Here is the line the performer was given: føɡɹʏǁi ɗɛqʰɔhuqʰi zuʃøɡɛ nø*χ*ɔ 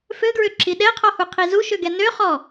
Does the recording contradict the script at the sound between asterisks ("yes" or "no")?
no